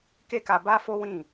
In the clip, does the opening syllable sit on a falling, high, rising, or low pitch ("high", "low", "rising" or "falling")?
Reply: high